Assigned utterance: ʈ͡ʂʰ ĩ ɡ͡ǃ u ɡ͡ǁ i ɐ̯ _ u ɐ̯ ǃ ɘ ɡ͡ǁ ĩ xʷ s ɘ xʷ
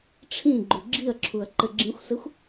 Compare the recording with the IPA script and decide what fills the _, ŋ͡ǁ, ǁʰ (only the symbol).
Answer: ǁʰ